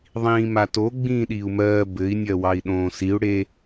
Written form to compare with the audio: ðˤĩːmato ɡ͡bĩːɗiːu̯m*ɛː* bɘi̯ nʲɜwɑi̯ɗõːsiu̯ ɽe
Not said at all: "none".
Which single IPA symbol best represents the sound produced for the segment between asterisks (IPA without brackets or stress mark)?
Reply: ɜː